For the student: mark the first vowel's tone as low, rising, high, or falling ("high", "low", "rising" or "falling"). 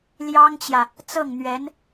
high